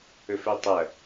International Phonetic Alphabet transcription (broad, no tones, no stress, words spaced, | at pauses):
ɵfɵtˤɐ